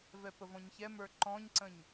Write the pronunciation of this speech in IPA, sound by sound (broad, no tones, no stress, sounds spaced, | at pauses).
v ɛ p ə v ɔ̃ ɲ ç ɛ m ə˞ ǃ ɔ̃ ɲ ǀ ə̃ ɲ